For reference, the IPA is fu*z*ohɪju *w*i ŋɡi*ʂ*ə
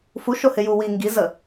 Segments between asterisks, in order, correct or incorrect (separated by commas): incorrect, correct, incorrect